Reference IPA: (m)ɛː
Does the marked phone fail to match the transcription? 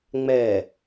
yes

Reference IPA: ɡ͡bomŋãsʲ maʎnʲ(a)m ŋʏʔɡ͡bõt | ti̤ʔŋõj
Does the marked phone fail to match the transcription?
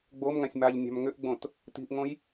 yes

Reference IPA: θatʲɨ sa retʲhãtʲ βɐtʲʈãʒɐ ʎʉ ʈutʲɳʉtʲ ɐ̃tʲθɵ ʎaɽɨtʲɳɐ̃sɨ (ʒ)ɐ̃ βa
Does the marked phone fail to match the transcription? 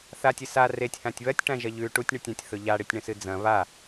yes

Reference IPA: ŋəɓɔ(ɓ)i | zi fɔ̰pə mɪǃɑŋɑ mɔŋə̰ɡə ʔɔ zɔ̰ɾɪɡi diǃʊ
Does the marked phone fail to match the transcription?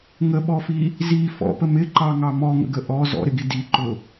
yes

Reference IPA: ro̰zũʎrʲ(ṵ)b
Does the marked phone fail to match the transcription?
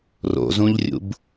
no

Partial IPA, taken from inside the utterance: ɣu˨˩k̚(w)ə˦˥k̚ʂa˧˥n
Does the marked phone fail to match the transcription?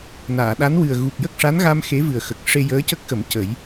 yes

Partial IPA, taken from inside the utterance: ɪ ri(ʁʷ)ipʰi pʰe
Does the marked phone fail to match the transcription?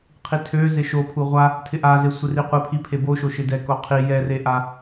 yes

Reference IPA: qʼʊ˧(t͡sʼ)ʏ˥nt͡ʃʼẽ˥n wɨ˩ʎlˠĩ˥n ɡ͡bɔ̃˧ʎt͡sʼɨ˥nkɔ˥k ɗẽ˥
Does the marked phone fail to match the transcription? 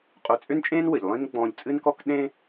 no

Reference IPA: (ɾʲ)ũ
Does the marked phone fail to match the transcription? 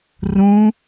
yes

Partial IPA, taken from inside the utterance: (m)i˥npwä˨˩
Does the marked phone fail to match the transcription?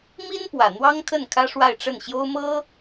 no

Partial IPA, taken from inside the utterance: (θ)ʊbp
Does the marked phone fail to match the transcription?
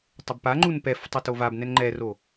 yes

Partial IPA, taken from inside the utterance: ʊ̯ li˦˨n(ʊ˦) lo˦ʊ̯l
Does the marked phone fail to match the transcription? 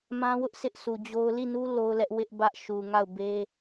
yes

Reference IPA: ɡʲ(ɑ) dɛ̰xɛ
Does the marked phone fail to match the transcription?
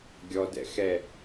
yes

